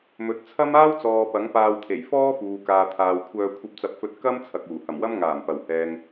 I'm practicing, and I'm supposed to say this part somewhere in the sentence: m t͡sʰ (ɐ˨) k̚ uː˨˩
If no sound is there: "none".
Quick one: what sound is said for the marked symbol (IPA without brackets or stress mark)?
ɐ˨